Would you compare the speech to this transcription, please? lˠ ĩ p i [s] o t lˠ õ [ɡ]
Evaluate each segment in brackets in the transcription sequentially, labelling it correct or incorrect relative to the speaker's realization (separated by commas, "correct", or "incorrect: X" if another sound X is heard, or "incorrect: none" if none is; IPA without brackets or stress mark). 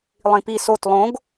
correct, correct